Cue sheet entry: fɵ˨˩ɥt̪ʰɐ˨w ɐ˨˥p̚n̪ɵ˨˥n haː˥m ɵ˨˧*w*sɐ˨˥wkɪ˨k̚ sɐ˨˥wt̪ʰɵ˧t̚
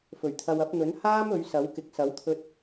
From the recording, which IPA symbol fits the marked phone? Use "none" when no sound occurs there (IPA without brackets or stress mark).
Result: ɥ